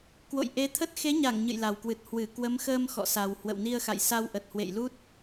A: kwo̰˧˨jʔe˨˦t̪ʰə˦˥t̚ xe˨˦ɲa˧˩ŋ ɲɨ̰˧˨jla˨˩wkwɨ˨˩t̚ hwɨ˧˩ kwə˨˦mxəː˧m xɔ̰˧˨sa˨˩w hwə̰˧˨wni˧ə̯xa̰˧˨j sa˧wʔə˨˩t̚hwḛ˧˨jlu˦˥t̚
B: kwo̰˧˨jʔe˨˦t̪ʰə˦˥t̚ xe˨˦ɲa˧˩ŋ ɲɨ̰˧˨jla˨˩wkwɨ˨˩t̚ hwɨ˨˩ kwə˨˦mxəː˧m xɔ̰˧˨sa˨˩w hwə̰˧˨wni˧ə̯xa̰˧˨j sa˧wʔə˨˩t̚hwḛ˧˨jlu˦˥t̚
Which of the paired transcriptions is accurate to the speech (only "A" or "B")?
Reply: A